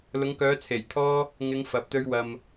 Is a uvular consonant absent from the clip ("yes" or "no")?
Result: yes